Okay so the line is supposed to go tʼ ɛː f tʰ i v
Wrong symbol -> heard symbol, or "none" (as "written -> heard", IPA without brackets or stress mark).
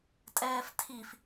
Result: v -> f